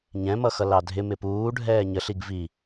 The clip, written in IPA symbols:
ɲɛ̃mʌxʌ lɑdʱɪ mɪpuː ɖʱɛːɲəɬiɡ vi

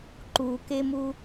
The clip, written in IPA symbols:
ǃukemu

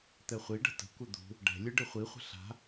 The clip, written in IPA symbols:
t̪ɛχʷiɖə̤ tə̤kʷə d̪ṳ | ɖɛ̤ lʲɯɖɨχʷiχʷə̤ ɬa̤

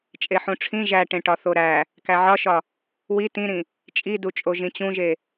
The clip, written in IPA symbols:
t͡ʃʼeħũʈ͡ʂʰĩ ʒæʈẽʈɒ θoɾæ | kæʕɒʃɒ | wi tĩɾĩ | t͡ʃʼidut͡ʃʼo ʒĩt͡ɕũʒe

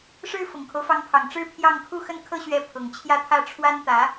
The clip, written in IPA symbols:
ʂɻ̩˥ fʊ˨˩ŋkʰo˦ʊ̯fɑ˧˥ŋpʰɑ˨˩ŋ ʈ͡ʂɻ̩˥pʰjɑ˥˧ŋ kʰu˥˧xə˥˧nkʰɤ˥˧ ɕɥɛ˥˩ pʰʊ˨˩ŋt͡ɕʰjä˥˧t̪ʰä˥˩ ʈ͡ʂʰwa˥nt̪ä˧˥

